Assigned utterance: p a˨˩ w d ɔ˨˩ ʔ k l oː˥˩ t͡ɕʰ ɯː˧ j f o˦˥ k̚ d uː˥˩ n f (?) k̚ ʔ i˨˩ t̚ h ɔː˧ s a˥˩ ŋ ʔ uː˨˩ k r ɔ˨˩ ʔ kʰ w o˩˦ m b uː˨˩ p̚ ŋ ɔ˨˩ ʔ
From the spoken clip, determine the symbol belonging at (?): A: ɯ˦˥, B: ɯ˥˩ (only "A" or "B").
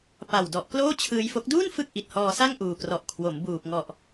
B